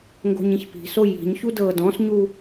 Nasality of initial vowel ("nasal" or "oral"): oral